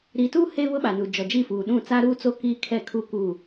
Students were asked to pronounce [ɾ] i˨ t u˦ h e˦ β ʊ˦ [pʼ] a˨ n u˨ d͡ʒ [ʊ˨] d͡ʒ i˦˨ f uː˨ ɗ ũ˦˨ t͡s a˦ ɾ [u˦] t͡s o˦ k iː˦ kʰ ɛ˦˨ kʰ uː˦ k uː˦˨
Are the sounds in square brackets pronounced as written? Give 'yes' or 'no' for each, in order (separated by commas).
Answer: yes, no, no, no